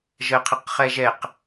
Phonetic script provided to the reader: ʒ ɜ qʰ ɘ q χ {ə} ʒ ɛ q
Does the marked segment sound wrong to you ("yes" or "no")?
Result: yes